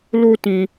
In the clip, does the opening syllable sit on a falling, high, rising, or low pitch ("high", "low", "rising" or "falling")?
high